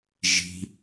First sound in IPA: ʒ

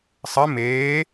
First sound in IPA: sˤ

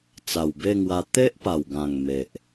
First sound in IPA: t͡s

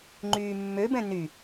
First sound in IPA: ŋ͡ǃ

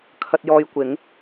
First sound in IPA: kʰ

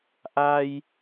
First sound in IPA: ʔ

